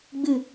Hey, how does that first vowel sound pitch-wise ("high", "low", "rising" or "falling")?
falling